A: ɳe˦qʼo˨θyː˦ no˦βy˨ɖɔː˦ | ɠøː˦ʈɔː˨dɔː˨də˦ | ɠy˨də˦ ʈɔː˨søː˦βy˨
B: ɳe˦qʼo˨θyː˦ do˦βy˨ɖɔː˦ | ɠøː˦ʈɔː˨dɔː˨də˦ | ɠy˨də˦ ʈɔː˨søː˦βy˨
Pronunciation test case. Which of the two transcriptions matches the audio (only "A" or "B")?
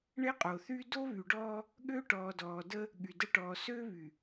B